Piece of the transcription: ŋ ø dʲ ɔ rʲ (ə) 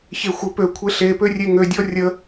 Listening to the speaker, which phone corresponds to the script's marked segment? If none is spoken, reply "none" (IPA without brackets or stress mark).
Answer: ə